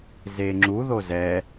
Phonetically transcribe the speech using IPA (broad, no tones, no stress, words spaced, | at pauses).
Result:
zeŋ͡ǁu ðozɛ